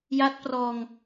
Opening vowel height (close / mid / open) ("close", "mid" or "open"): open